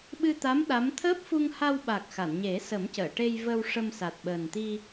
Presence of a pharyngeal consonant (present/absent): absent